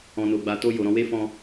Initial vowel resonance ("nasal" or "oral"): nasal